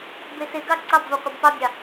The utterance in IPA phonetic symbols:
b e s e ɡ ɑ ǀ ɑ b v ɑ qʷ ʌ b p ɑ bʲ ɑ

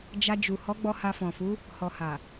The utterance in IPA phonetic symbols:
d͡ʒ a˧ d͡ʒ u˨ h ɔ˨˦ ɡ͡b ɔ˧ h a˧ f ɔ̃˨ f u˨˦ | h ɔ˨ h a˨

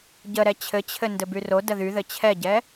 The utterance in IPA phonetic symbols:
ɟ ə ɾ ɛ t͡ɕʰ ɘ t͡ɕʰ ɘ n d ɘ b y r o d ə ð y ð ɘ t͡ɕʰ ɛ ɟ ɛ

